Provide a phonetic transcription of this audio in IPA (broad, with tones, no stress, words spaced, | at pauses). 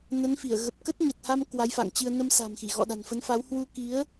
nə˨˦nfi˧˩ə̯ ɣə˨˩p̚ kə˦˥t̚ɲə˨˩t̚ha˧m kwa˨˦jfa̰˧˨ŋt͡ɕɨ˧ə̯ nə˧msa̤˨˩mxi˧˩ ɣɔ̰˧˨ɗa̤˨˩nfə˨˦nfa˨˦w hwu˧ki˨˦ə̯